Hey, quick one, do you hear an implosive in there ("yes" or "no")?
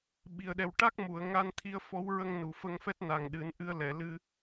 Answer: yes